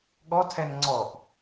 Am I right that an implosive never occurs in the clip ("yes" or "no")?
no